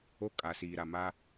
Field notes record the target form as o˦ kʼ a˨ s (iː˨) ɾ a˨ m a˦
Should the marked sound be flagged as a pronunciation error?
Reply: no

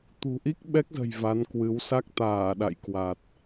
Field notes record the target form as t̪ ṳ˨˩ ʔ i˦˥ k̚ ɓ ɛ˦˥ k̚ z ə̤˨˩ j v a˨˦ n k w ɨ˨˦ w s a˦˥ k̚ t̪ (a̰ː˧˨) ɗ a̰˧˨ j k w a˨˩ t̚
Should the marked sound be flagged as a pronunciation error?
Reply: yes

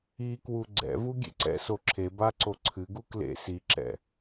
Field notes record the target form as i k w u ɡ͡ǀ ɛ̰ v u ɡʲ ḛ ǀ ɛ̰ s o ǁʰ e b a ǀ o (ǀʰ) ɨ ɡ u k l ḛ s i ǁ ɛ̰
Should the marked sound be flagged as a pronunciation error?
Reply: no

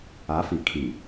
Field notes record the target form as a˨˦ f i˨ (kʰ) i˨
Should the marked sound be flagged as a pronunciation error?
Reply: no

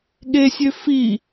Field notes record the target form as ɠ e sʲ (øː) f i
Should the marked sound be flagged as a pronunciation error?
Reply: yes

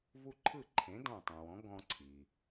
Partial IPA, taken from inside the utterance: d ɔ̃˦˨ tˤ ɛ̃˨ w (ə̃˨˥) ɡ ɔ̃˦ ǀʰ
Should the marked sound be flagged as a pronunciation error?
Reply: yes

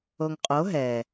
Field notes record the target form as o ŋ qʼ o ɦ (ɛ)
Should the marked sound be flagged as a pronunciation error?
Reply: no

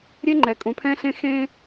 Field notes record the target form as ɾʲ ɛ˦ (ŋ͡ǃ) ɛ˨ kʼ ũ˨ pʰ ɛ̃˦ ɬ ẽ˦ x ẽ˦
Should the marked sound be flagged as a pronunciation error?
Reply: no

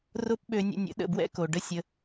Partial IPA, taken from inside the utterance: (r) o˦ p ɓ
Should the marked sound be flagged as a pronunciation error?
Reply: no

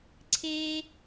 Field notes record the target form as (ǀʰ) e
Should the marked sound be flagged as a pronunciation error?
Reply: no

